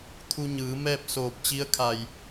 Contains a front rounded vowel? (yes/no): no